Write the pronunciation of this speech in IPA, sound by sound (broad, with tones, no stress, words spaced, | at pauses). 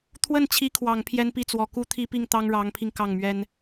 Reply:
t̪ʰwə˥˩nt͡ɕʰi˧˥kʰwɑ˨˩ŋ pʰjɛ˥npi˥˩t͡swɔ˨˩ ku˥t̪ʰi˥pi˥˩ŋ t̪ɑ˥ŋɻɑ˧˥ŋpʰi˧ŋ kɑ˥˩ŋmɥɛ˥n